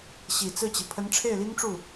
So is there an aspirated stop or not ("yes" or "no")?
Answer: yes